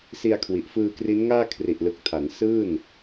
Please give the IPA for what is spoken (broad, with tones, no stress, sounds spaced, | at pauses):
s i˧ a̯ kʰ w i˨˩ ʔ f ɯː˧ k r i˦˥ n ŋ aː˥˩ kʰ r i˨˩ ʔ l ɯ˨˩ k̚ tʰ a˩˦ n s ɯː˥˩ n